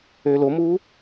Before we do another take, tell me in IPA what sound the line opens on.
ø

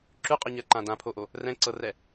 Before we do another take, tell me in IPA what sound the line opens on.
ǁ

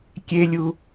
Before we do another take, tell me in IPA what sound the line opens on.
kʲ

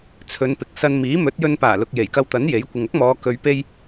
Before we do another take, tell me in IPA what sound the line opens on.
t͡sʰ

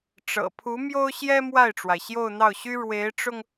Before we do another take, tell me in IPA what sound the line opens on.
ʈ͡ʂ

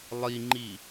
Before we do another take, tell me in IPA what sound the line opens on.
lˠ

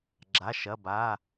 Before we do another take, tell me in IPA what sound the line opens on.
ɡ͡ǁ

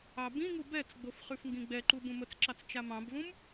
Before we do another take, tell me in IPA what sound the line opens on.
ɑ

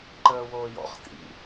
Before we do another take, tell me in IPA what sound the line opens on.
ǃ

